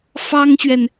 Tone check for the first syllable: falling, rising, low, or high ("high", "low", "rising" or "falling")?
high